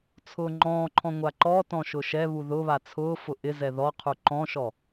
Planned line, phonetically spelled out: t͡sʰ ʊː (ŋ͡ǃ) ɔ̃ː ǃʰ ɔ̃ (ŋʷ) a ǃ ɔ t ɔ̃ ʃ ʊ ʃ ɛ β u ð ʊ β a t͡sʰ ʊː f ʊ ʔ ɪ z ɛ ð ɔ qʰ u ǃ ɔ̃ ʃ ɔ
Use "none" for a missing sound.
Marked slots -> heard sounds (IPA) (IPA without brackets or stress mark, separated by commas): ŋ͡ǃ, ŋʷ